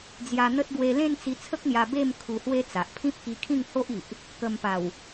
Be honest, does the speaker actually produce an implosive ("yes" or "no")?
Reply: no